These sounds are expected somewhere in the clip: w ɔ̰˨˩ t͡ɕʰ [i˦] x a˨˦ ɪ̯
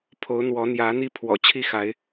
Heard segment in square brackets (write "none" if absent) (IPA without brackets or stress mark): i˦